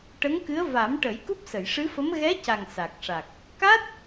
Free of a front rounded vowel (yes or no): yes